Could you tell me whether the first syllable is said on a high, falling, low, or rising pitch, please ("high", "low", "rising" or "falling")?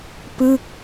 falling